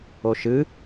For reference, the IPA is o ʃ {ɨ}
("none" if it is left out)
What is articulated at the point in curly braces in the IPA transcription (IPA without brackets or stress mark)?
ɨ